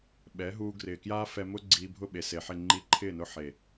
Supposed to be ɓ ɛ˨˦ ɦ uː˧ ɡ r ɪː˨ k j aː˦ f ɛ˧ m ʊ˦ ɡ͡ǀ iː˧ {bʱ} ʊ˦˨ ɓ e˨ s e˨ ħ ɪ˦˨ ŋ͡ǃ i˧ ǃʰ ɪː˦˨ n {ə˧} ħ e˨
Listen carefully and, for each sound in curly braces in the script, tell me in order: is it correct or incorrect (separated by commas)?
correct, incorrect